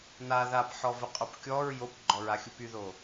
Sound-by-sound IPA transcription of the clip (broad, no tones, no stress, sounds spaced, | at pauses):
n a ð a p ħ ɔ v ə qʼ o p kʲ ɔ ɹ j o p ɡ͡ǃ ɔ ɹ a xʲ u p y ð o